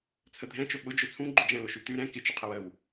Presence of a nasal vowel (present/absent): present